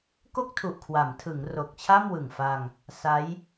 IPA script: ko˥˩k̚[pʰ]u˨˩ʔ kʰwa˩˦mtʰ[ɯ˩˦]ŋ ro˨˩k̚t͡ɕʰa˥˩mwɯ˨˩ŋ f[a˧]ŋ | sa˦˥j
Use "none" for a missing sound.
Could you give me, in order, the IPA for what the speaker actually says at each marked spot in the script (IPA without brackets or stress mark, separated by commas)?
tʰ, ɯ˩˦, a˧